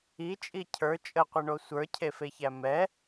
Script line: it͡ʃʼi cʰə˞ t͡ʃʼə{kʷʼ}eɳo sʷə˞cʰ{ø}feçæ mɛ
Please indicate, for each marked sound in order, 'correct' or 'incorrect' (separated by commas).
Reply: incorrect, incorrect